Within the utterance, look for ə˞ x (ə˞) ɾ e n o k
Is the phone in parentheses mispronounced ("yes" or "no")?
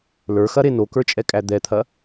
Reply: yes